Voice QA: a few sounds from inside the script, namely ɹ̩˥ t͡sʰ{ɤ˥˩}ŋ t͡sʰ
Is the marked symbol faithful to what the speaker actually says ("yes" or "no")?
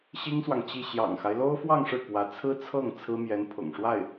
yes